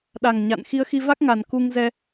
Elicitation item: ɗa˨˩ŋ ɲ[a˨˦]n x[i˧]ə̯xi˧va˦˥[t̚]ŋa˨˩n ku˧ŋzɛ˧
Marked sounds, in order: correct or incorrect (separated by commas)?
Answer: incorrect, correct, incorrect